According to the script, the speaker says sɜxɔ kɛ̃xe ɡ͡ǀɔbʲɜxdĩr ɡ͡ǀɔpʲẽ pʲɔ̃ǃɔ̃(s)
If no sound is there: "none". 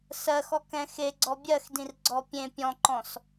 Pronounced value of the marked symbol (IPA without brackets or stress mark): s